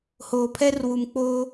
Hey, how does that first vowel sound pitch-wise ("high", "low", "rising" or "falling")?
low